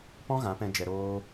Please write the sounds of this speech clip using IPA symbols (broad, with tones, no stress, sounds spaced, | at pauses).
p ɔ̃˦ ɣ ã˨˦ p ɛ̃˧ d͡ʒ ɛ˨ ɾ oː˧